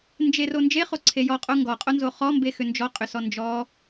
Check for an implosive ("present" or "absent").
absent